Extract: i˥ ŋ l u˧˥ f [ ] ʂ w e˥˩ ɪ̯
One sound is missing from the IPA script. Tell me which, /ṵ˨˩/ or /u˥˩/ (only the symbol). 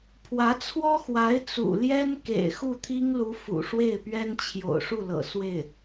ṵ˨˩